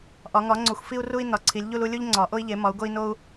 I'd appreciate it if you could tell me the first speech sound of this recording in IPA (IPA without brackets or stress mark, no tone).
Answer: ʔ